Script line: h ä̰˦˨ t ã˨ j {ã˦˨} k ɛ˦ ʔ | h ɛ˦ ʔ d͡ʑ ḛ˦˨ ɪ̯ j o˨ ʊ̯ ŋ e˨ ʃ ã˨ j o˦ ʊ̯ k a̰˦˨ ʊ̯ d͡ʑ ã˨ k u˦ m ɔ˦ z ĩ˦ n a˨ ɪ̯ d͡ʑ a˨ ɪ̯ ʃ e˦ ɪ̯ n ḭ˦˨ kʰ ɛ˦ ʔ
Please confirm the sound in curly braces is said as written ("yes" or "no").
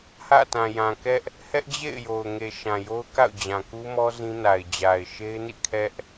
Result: no